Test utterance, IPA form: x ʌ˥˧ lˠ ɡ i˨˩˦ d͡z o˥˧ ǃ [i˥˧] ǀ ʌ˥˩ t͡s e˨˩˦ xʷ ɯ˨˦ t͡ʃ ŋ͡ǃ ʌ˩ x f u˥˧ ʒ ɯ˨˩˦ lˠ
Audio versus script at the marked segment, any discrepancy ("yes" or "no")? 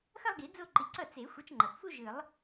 yes